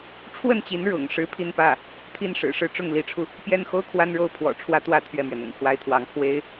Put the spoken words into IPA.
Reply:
ʈ͡ʂʰ w ə˥˩ n t͡ɕ i˧˥ n ɻ ʊ̰˨˩ ŋ ʂ ɻ̩˧˥ pʰ i˥˧ n p ä˥˩ | t̪ʰ i˥˩ n ʂ ɻ̩˨˩ ʂ ɻ̩˥˧ ʈ͡ʂ ʊ˥˩ ŋ l i˧˥ ʈ͡ʂʰ u˧ | p j ɛ˥˩ n x o˥ ʊ̯ kʰ w a˥ n ɻ o˥˩ ʊ̯ pʰ w ɔ̰˨˩ ʈ͡ʂʰ w ä˥ t̪ w ä˥˧ t̪ʰ ɥ ɛ˥˩ m ɥ ɛ˩ n̪ ʊ̰˨˩ ŋ kʰ w a˥ ɪ̯ t̪ʰ w ɑ˧˥ ŋ pʰ w e˥ ɪ̯

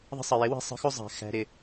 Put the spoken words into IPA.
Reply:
ðˤ ə̤˧ sˤ ə˨ j ɪ˨˦ w ɛ̤˧ sˤ ə̤˨˦ x u˧ zˤ æ̤˨ x æ̤˨ ɾ ɪ˨

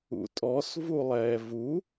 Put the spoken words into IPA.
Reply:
ṵ tʼ ɔ s v u lˠ ɛː v u

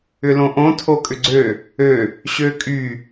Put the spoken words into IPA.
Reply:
ʏ l õ ʔ õ tʰ o kʼ ʏ ɡ͡ǀ ø | ø | ɕ ø kʼ y

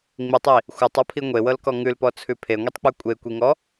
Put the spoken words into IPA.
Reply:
ŋ͡m i tˤ i | xʷ ɤ tˤ ɔ pʰ i ŋʷ e w ɤ l k ɔ ŋ ʉ l p ɔ t͡sʰ ʉ pʰ e ŋʷ i tˤ k͡p ʉ kʷʼ e kʷ i ŋ ɔ

